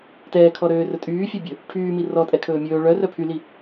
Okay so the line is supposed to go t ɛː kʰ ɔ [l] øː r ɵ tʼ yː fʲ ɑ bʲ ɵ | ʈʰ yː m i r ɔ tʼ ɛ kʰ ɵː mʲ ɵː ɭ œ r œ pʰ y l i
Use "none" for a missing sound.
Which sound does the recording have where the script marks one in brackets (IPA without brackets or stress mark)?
ɾ